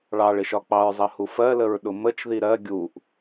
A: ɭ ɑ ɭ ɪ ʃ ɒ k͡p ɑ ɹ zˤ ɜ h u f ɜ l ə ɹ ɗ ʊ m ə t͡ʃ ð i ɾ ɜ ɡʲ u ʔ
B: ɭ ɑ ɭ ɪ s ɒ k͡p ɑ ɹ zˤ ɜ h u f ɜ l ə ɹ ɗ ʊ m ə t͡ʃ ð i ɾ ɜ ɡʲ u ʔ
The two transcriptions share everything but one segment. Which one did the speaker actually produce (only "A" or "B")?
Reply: A